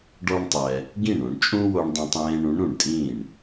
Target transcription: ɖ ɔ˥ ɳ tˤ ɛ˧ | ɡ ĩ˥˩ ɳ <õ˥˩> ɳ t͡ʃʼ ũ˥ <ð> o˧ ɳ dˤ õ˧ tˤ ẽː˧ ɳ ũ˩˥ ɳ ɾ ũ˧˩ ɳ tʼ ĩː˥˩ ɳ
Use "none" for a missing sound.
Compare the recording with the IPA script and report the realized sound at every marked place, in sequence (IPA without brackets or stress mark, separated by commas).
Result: õ˧, w